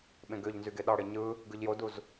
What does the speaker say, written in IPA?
ɓ ẽ ɡ ø ʎ n z y ɡ e ɗ ɑ ɽ e ɲ ɯ | ɡ ɯ ʎ j o d u z

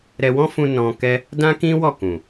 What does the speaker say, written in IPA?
ɾ ɛ˧ w ɔ̃˦ f ũ˧ n ɔ̃˧ k ɛ˦ | d ã˦ k ĩ˦ w ɔ˦˨ k ũ˨

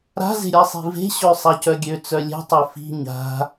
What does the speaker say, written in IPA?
ɾ a̤ z e̤ ɾʲ a sˤ i̤ v e̤ ɕ ø sˤ a c œ ɡʲ ø t͡s œ lʲ e̤ tˤ e f i̤ ɲ a̤

